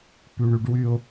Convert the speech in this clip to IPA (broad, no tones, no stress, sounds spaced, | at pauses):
p y ɳ y ɖ w y ʊ̯